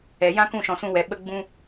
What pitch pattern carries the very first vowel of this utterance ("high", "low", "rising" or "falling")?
low